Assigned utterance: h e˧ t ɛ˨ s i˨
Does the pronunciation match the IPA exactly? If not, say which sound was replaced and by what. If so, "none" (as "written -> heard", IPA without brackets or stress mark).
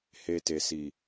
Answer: ɛ˨ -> e˨